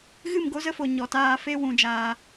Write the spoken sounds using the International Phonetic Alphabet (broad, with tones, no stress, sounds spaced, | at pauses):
ɣ ɨ˦˨ m ɡ o˦ z ə˦ f o˨ ɲ ɔ˨ t aː˧ f e˦ w ũ˧ d͡ʒ aː˧